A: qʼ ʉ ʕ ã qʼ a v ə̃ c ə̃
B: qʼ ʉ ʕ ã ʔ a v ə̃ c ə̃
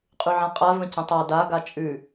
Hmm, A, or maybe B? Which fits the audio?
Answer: A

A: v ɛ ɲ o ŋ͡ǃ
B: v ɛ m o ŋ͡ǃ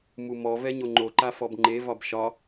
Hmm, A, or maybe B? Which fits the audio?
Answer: A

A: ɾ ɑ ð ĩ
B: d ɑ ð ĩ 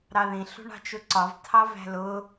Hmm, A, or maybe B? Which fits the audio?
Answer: A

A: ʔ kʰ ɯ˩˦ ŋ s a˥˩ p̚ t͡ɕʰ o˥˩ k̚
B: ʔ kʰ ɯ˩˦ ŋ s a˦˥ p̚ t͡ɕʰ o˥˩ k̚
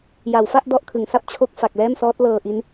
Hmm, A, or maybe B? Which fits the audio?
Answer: A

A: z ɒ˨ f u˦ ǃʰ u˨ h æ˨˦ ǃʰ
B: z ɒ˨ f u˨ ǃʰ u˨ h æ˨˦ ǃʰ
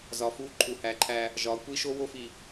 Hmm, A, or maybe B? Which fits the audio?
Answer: A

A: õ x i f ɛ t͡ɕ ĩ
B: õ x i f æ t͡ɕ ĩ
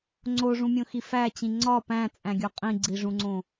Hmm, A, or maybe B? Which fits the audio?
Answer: B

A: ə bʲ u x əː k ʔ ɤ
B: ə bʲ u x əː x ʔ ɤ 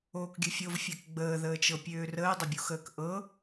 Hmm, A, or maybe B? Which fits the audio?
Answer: A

